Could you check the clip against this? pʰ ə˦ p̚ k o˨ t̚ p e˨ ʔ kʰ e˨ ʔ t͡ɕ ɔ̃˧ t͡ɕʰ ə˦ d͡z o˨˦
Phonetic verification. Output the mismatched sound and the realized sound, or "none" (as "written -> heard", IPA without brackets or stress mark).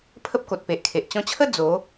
none